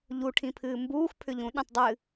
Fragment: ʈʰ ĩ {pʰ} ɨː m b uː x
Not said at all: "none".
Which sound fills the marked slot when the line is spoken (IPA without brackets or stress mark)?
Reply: pʰ